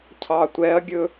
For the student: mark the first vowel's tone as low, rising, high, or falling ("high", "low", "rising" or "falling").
low